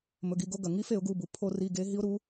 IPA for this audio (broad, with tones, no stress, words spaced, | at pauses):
mɵ˩˧˩ɡi˩˧˩ɡo˦˨ ɡɐ˩ ŋi˧˥fe˧˩˧ʊ̯ɡu˩˧˩bu˩ pʰo˧˩˧ri˩˧˩ ɡe˧˥ ɦi˧˥ʊ̯ɾu˩˥